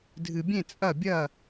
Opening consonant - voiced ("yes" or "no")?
yes